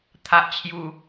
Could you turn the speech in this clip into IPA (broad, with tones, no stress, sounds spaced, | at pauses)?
t̪ʰ a˨ ʔ t͡ɕʰ j u˨˩